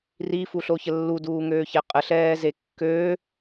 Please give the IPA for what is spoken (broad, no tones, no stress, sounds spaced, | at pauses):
r i f u ɬ o ç ə lː u d uː ŋ øː ç ɛ qʼ ə ɬ ɛː z e kː øː